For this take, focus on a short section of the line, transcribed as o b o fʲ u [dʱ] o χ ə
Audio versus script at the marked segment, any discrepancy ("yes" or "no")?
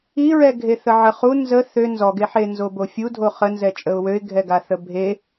no